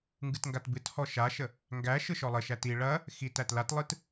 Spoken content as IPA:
ŋɡɨtŋɡatbɨt hɔʃaʃə | ŋɡæ ʃɯʃɔlˠəʃæt i ɭɐ | xit ætlatlˠɯt

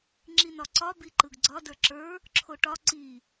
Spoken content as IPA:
ŋ͡ǁinɒǀɒ biǃɯɡɡ͡ǀɒ də˞ǁə˞ | ǁʰoʈɒ ǀi

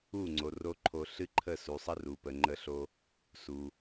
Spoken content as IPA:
u˦˨ŋ͡ǀo˨ro˧ ǃʰo˧ɬɨ˦ǃʰə˦˨ su˨sˤə˦ru˨pə˨ ŋ͡ǃə˧ɬo˧ | su˨

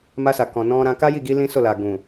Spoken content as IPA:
ma˧sa˨kɔ̃˨ nɔ̃˧ɾã˧ ka˦ji˦˨ɡi˧ lĩ˦so˦˨ la˨ɡũ˨

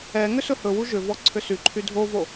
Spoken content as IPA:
ɛ ŋʏsɵhɵwu ʒʏvɔ ǀʰʏsyǃʰy dʱovo

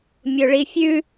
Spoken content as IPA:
mʲoɭifʲʉ

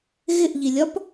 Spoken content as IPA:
ɣɪʔʎilʲɒp

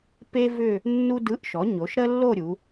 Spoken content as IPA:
pe˥ vʏ˥˧ | nːu˥dɯ˧˥˧ʔʃɔ˩˥ɲo˩˥ʃ ɾə˥lːo˥˧ɾʲu˩˧

